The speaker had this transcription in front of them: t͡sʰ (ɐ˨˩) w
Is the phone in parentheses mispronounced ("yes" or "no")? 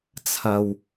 yes